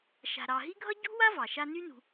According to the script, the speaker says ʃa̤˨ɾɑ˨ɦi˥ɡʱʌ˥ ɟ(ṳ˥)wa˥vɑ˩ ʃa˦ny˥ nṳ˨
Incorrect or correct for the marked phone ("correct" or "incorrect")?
correct